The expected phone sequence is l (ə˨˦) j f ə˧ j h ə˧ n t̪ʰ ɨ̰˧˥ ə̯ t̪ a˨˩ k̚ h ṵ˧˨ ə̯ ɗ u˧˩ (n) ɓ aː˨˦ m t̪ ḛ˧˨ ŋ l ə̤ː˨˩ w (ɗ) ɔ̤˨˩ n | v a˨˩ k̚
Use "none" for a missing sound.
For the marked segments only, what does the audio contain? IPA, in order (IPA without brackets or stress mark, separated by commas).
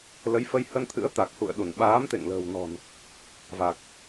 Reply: ə˨˦, n, n